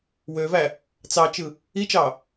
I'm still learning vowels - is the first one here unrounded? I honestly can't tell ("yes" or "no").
no